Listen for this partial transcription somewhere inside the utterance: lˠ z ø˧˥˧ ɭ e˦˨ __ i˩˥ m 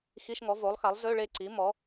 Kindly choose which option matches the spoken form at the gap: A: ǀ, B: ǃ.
A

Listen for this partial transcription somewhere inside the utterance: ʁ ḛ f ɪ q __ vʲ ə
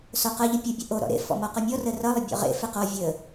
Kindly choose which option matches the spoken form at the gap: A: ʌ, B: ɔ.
B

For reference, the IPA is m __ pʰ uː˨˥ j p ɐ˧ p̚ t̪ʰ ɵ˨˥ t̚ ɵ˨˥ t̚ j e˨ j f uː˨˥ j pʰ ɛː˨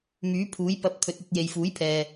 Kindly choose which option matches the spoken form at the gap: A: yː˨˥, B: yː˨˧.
A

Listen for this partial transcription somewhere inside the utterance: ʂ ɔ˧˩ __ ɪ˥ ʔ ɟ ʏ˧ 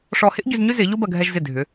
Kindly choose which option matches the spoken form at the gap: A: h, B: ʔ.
A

